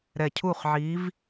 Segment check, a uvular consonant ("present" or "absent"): present